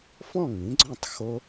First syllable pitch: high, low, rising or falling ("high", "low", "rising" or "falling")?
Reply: falling